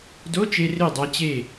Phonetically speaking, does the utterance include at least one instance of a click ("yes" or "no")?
no